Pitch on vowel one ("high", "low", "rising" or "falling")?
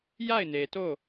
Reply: falling